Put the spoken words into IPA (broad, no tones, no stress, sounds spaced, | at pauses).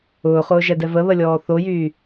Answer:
ʊː χ ʊː ʒ ɛ d ɛ v ə β ə lʲ ɔː θ o j yː